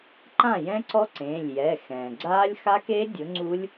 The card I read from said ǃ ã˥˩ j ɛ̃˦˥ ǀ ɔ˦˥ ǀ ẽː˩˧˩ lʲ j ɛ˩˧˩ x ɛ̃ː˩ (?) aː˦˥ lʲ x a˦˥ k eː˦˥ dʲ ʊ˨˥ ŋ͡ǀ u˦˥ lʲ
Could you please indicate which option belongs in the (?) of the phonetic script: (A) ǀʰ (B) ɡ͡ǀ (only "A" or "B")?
B